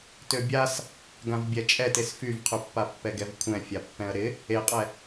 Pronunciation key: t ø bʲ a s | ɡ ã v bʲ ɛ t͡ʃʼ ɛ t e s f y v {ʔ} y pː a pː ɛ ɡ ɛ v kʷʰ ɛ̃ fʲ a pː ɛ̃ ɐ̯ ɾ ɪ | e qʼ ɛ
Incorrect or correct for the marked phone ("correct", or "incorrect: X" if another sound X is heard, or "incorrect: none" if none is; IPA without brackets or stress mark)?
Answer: incorrect: qʰ